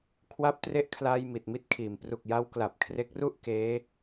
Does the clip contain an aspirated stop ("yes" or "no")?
yes